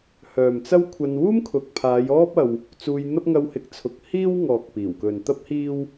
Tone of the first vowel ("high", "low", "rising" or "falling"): low